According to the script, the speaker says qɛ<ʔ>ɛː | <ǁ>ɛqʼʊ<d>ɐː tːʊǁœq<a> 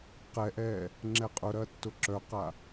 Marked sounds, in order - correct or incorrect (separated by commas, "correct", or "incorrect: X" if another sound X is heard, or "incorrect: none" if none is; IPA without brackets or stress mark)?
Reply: correct, incorrect: ŋ͡ǁ, incorrect: ɾ, correct